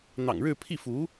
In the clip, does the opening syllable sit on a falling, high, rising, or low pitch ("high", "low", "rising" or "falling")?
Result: low